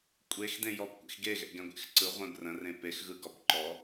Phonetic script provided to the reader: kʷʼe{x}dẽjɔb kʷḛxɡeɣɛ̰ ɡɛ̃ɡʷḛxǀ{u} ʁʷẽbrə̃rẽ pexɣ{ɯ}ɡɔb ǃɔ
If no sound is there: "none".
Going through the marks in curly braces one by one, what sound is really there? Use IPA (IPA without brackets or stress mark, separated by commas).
x, ɯ, ɯ